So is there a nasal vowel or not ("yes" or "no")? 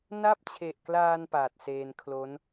no